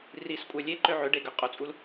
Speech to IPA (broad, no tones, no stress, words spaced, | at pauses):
riskʷʼœ lʲeǃø ʕøɖe ɡøqʼut͡sʼul